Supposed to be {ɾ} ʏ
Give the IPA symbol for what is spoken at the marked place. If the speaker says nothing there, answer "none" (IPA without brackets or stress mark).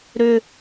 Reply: ɾ